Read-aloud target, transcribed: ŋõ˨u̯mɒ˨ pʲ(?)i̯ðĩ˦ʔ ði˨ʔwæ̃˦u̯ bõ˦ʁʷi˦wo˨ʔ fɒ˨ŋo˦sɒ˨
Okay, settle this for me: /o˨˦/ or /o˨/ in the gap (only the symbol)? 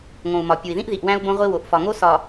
o˨